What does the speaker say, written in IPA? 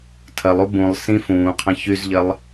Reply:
tʰ ɐ lˠ u b ũ lˠ s ĩ f ũː qʰ ɐ̃ ç y z ʎ ɐ lˠ

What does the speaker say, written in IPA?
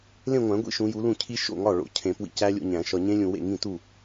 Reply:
l ẽ˥˧ ŋʷ æ̃˨˩˦ ɡʷ ḭ˦˥ ʃ ũ˨˦ j u˨˦ l ũ˥˩ cʰ i˦˥ ʃ o̰˥˩ ŋ ɒ˥˩ ɭ o̰˨ cʰ ẽ˨˩˦ p w ḭ˨˦ c æ˦˥ lʲ o̰˥˧ ɲ æ̃˨˩˦ ʃ ɒ˨ ɲ ẽ˦˥ lʲ ũ˨ w ḛ˥˩ ŋ ĩ˥˩ t u˥˩

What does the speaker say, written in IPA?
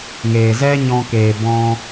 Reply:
ŋ eː˨ z ɛ˦ ɲ ɔ̃˧ k e˨ b ɔ̃˧

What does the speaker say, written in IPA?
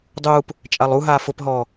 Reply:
dˤ uː p | t͡ʃʼ a lˠ u ɦ aː f ʊ p ɦ ɔː

